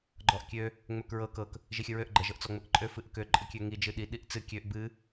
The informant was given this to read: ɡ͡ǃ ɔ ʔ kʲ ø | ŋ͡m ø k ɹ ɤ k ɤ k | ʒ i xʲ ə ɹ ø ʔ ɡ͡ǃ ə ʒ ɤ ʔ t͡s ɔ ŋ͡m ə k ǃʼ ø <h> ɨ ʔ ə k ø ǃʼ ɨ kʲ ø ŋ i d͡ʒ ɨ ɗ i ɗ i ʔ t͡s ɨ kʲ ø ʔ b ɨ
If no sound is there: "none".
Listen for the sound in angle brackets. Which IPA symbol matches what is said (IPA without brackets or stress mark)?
f